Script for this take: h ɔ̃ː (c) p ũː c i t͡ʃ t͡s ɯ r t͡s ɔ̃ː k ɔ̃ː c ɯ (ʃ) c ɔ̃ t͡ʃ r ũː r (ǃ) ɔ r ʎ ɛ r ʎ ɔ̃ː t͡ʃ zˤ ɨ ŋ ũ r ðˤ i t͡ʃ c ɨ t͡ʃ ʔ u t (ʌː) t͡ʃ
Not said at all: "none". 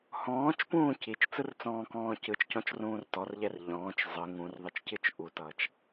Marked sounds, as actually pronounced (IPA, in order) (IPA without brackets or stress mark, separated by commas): t͡ʃ, t͡ʃ, t, ʌː